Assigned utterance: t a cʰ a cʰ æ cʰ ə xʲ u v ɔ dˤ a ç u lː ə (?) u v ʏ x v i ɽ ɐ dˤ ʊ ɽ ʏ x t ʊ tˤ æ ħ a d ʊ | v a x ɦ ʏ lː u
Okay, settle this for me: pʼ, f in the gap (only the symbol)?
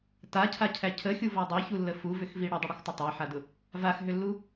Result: f